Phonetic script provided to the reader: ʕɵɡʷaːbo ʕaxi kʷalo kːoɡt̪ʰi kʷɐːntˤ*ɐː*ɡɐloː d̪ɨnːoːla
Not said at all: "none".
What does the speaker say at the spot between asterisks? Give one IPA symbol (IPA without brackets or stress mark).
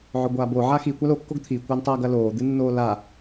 ɐː